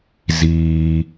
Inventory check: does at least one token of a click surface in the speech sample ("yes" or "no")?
no